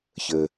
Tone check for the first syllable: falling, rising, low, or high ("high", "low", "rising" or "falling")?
low